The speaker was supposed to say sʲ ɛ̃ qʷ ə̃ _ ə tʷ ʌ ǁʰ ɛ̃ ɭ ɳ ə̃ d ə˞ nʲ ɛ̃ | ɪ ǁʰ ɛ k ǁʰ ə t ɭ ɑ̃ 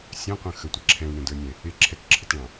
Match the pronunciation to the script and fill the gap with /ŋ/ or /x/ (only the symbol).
x